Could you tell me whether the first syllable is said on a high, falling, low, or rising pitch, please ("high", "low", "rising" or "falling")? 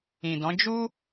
low